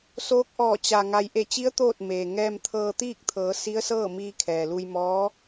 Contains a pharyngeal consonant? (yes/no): no